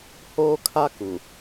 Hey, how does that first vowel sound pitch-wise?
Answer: high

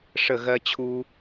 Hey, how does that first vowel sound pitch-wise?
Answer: falling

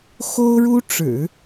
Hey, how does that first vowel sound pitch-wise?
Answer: high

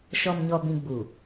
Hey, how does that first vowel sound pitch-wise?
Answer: low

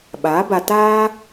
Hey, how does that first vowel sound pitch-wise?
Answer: rising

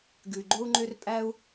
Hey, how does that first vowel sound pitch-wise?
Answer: low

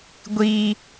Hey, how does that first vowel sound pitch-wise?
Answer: high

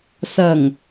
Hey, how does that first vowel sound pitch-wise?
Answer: low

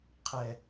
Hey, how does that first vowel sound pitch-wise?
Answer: low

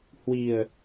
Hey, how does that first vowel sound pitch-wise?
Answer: low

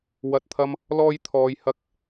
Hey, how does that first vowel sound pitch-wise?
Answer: low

